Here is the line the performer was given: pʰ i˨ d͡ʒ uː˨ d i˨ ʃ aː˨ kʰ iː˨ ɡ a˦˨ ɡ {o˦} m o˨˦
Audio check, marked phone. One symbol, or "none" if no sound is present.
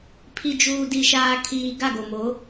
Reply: o˨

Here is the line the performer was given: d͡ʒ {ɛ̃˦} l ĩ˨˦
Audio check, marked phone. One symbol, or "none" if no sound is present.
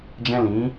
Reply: ɛ̃˦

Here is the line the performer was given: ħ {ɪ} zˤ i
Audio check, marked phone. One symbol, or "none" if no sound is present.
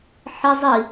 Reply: ɪ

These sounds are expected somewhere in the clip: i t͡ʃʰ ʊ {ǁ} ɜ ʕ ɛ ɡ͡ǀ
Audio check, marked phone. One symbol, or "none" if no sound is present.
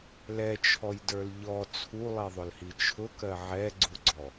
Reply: k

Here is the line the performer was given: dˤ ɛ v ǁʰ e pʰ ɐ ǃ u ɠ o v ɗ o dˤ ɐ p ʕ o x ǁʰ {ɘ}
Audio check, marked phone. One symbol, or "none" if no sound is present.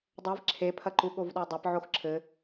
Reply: ɘ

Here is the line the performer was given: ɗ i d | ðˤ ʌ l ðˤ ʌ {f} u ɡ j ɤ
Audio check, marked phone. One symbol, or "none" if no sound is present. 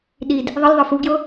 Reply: f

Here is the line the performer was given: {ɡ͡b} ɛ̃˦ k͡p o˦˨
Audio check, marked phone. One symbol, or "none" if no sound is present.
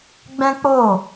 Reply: ɡ͡b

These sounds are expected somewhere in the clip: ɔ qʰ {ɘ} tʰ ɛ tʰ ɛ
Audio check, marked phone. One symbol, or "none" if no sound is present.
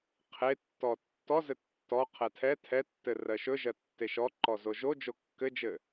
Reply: ɛ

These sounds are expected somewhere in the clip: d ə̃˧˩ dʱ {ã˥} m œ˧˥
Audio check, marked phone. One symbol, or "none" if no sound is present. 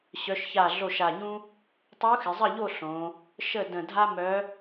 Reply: a˥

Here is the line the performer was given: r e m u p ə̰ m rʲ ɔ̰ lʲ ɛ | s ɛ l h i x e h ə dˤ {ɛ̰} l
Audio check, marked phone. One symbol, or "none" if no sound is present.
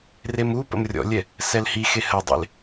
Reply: ḛ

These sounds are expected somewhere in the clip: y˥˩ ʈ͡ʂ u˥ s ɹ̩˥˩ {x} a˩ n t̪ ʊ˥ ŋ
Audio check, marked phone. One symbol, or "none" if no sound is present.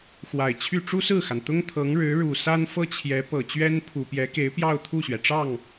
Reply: x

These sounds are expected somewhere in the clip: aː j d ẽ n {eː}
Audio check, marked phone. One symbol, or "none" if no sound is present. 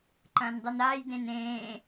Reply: ẽː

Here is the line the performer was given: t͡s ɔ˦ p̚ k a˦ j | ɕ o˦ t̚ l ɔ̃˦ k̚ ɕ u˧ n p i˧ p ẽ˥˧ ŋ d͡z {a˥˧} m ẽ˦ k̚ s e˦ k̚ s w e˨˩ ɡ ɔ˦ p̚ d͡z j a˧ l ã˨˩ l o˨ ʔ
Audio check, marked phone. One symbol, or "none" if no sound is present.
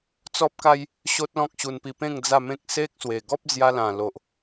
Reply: a˥˧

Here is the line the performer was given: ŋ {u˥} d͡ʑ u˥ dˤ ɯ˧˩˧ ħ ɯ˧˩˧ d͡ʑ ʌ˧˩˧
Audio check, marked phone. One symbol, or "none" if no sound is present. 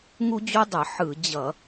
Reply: u˥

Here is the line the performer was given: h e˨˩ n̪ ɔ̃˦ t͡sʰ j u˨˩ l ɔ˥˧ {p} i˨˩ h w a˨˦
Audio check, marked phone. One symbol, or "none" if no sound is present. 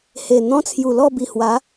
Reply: b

